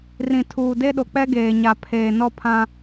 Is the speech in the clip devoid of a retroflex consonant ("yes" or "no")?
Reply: yes